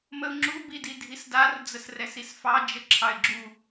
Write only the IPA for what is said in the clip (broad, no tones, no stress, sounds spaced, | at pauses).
m ə ʊ̯ ŋ͡ǁ u b i d i dʱ i s d a r d͡z ə s r ɛ s i s f ɑ d͡ʒ ə ǁʰ ɑ ɪ̯ ɡ͡ǁ u